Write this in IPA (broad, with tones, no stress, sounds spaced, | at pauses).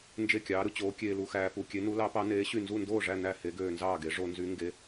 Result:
n d͡ʒ e˥˨ kʲ ɑː˧˥ ɾ ɯ˧ t͡ɕ oː˧˥ kʲ eː˧ l u˧ x æː˧ p u˧ kʲ e˧˥ n u˧˥ l ɑ˧˥ p ɑ˧˥ n eː˧˥ ɕ y˥˨ n z u˥˨ n d oː˥˨ ʐ æ˥˨ n æ˥˨ h e˧˥ ɡ øː˧ n z ɑː˥˨ ɡ e˧˥ ʐ o˧ n z y˧˥ ŋ ɡ e˧˥